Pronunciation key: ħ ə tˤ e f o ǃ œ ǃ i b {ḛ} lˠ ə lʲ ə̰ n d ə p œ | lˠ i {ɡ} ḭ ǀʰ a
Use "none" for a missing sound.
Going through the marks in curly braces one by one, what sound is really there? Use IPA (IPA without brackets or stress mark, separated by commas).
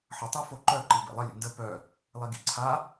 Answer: ḛ, ɡ